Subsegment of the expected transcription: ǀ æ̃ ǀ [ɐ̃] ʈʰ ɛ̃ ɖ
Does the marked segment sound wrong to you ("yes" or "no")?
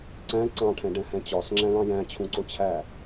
yes